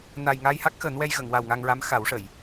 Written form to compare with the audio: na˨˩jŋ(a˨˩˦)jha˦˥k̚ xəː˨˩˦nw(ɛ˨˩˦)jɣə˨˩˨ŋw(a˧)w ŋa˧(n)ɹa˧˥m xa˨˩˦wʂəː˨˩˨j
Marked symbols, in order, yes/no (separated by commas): no, no, no, no